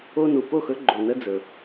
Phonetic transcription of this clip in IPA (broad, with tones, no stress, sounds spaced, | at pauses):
o˦ n u˨ p o˦˨ x ɵ˦ ɡ͡ǃ o˨ n ə˦ d͡z ɵ˨